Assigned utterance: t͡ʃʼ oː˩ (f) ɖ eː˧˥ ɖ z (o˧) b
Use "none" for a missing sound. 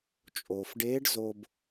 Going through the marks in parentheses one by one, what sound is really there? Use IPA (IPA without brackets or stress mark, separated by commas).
f, o˧